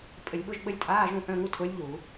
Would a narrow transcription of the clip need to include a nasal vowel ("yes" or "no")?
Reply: yes